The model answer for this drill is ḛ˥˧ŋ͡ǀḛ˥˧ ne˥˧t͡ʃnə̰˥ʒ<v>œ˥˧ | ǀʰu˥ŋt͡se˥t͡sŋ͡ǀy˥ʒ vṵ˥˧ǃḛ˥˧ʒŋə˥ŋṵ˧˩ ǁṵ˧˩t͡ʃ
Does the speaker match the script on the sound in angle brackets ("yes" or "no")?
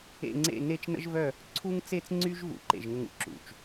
yes